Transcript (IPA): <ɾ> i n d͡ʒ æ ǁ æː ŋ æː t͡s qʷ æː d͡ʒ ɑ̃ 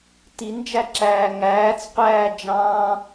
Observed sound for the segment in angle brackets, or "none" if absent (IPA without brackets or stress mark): t